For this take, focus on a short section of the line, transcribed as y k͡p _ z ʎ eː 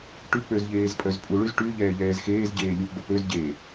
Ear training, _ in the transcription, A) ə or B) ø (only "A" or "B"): B